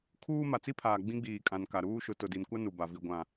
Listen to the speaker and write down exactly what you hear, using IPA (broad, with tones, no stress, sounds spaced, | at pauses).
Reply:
kʰ uː˦ m a˨ t͡s i˦ pʰ aː˨ ɡ͡b ĩ˦ ɡ͡b iː˨ kʼ ã˨ n k a˨ ɾ uː˦ ʃ ʊ˨˦ t ʊ˨ d i˨ n kʷ a˦ n u˨ b a˨ v i˨ ɡʷ ã˨